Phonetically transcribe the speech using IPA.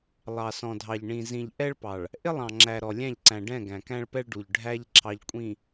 lˠ ɑ˨ s ɔ̃˨ dʱ ɑ˨ ʎ ɳ ĩ˨ z ĩ˨ ʎ ʔ ɛ˦ ɭ p ɑ˨ ɭ | ʔ ɪ˦ lˠ ɑ̃˨ ŋ͡ǁ æ˨ ɾ ɔ˨ lʲ æ̃˦˨ ʎ ǀ æ̃˨ ɖ ɛ̃˦˨ ɡ æ̃˨ k æ̃˦ ɭ p ɛ˦ ɭ ɖ u˨ ʎ ɖʱ æ˦ ʎ ǁʰ ɑ˨ ʎ kʷʼ ĩ˨

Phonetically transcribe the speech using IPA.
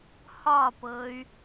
h ɒ p ɤ y̯

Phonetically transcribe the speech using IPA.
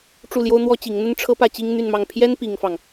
ʈ͡ʂ u˥˩ l j o˥ ʊ̯ n̪ w ɔ˥ t͡ɕ i˧˥ ŋ n̪ ə˥ n ʈ͡ʂʰ ɤ˥ p ä˥˩ t͡ɕ i˥ ŋ n̪ y˥˧ n m ɑ˥˩ ŋ pʰ j ɛ˥ n p i˥ ŋ f ɑ˨ ŋ

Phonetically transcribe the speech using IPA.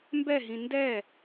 m b ɛ ɦ ĩ n d ɛ

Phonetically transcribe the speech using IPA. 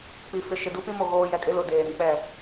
k͡p i˨ f ɪ˨ ʃ ɪ˨ d u˦ p ĩ˦ m o˨ ɣ oː˦ j ɛ˨ kʼ ɪ˦ l ʊ˨ d eː˨ ɾ ĩ˨ k͡p ɛ˦˨

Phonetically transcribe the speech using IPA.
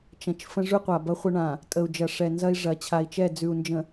t͡ʃ ɐ̃˨ t͡ʃ f ə̃˦ ʐ ʉ˦ qʷ a˨ b ɐ˦ χʷ ə˦ ɳ ã˨ | tʼ ə˨ u̯ d͡ʒ ɐ˨ ʂ ɛ˨ n z ɐ˦ i̯ ʐ ɐ˨ t͡ɕʰ a˨ i̯ t͡ʃ ɛ˦˨ d͡z ʉ˨ u̯ n d͡ʒ ə̃˨

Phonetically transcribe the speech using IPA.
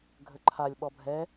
ɡʱ ə ǃʰ a lʲ ɓ ɔ bʱ ɛ

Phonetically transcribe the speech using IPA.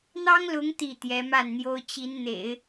n̪ ɑ˥ ŋ l ʊ˧˥ ŋ t̪ i˥˩ t̪ j ɛ˧˥ m a˥˩ n n̪ j o˥ ʊ̯ t͡ɕ i˧˥ n n̪ ḛ˨˩˦ ɪ̯

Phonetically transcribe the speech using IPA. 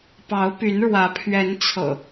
p ɑ˨˦ ʊ̯ p y˨˦ n ɻ w ä˨˦ pʰ ɥ ɛ˨˦ n t͡sʰ ɤ̰˨˩

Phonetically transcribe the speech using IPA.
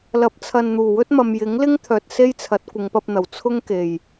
l ɐ˨˥ p̚ t͡sʰ ɐ˨ n n̪ uː˨˩ w ɵ˥ t̚ m ɐ˨ m j ɪ˨˥ ŋ l ɪ˥ ŋ t̪ʰ œː˨ t̚ s e˥ j t͡sʰ ɐ˨˥ t̚ kʷ ɪ˨˧ ŋ p ɐ˧ p̚ n̪ ɐ˨˩ w t͡sʰ ʊ˥ ŋ k e˨˩ j

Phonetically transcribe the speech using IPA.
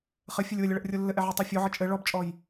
χ ɘ fʲ ɘ lʲ w ə lʲ ə ɭ ə ʔ rʲ o lː ɘ ʔ ɛ ʕ ɛ tˤ o fʲ o ʕ ə t͡ʃʼ ɘ ɭ ɔ b t͡ʃʼ ɔ j

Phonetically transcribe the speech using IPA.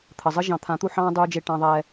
t̪ʰ ə˨ zˤ ə˦ ʒ ɑ̃˨ t̪ʰ ã˨˦ t̪ u˧ ħ ɑ̃ː˦ dˤ uː˧ d͡ʒ e˧ ʈ ɑ̃˧ ðˤ ɛː˧

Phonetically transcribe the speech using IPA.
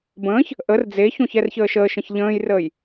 b ə̃ː ç | ʔ ə r d͡z e ç õ ç ɛ r ç əː ʃ əː ʃ ə̃ ç ʎ ə̃ː j r əː j

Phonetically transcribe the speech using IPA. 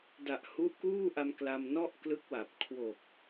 d a˨˩ ʔ h u˦˥ ʔ k uː˥˩ ʔ a˧ m k l a˧ m n ɔ˥˩ ʔ k l ɯ˦˥ k̚ w a˨˩ p̚ kʰ w o˨˩ k̚

